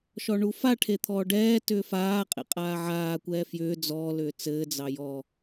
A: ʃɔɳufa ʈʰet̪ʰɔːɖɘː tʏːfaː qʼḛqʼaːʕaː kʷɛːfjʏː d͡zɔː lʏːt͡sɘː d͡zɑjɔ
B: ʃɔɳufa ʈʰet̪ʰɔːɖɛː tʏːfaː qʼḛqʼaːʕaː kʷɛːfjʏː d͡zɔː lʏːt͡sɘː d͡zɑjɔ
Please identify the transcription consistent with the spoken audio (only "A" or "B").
B